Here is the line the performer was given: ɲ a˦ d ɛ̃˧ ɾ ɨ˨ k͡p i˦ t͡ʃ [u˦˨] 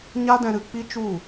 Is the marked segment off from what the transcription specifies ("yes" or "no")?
no